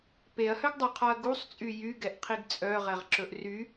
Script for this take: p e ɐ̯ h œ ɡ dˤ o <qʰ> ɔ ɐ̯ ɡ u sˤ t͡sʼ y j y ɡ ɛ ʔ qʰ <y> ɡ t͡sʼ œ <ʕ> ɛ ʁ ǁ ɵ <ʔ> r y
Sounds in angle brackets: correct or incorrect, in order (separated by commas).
correct, incorrect, incorrect, correct